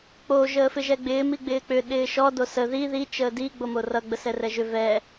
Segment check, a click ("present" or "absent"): absent